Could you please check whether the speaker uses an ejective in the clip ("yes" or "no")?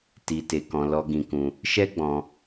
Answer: no